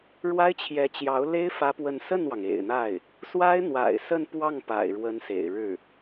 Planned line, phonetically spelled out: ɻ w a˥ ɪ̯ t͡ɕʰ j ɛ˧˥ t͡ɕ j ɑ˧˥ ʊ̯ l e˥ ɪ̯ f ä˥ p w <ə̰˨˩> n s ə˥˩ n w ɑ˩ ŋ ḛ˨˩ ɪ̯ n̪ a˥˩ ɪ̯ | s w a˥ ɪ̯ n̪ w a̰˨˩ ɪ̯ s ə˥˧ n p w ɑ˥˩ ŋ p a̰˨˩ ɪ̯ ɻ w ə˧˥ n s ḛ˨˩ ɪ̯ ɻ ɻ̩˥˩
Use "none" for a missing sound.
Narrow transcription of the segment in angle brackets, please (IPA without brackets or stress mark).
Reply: ə˥˧